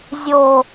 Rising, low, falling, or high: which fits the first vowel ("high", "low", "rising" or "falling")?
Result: low